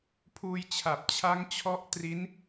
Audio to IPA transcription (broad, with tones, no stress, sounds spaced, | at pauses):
pʰ uː˧ j t͡ɕʰ a˨˩ p̚ t͡ɕʰ a˦˥ ŋ t͡ɕʰ ɔ˦˥ ʔ t r i˦˥ n